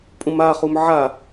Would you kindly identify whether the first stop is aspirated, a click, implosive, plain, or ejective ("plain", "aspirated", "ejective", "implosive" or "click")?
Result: ejective